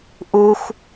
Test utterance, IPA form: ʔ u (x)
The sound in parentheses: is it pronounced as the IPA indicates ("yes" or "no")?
yes